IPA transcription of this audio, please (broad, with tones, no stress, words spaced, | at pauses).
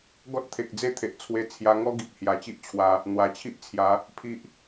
ɡɔ˦t̚t̪ʰe˨k̚d͡ze˥˧ t̪ʰe˨ʔt͡sʰwe˧ t͡sʰja˧ŋɔ˦ ɡi˨p̚hja˨˩ t͡ɕi˦ʔt͡ɕʰwa˧ | n̪wa˨˩t͡ɕʰi˦ʔt͡sʰja˨˦ | pʰi˦ʔ